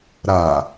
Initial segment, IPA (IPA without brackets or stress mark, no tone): ɾ